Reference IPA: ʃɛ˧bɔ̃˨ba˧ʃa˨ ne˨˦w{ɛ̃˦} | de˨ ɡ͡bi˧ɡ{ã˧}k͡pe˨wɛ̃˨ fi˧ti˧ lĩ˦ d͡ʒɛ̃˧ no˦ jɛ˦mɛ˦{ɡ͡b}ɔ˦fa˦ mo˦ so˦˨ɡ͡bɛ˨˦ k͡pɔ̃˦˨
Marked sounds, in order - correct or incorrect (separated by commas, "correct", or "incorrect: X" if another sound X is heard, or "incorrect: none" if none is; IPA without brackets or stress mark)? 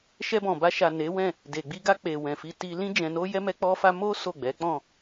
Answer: incorrect: ɛ̃˦˨, incorrect: a˧, incorrect: k͡p